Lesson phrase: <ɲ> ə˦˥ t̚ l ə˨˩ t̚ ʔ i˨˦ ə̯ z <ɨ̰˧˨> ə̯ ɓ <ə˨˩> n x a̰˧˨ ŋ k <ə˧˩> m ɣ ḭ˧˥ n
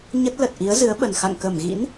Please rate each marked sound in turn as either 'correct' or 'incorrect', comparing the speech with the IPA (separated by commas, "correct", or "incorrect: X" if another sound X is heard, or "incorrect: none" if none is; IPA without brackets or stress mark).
correct, incorrect: ɨ˨˦, correct, correct